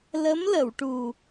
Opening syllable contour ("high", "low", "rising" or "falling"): rising